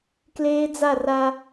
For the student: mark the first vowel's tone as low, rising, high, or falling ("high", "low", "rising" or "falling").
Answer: high